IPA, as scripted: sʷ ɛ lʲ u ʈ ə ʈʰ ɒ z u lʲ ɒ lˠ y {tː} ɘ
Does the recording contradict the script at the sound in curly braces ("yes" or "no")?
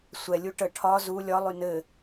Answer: yes